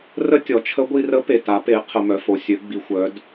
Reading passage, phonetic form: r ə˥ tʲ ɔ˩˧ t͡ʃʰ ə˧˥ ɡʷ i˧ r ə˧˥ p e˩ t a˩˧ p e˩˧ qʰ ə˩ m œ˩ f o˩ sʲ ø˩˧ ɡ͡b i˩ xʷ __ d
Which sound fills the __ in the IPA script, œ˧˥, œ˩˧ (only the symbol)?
œ˩˧